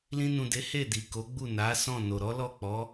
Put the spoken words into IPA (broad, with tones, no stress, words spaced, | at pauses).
lĩ˧nũ˨de˨˦ he˦˨di˨ ko˨˦ɡ͡bu˦˨na˨˦ sɔ̃˦˨no˨ ɾɔ˨˦lɔ˦˨k͡pɔ˨˦